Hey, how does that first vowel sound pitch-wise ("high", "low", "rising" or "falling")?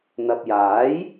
low